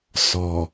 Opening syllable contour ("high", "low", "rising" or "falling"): low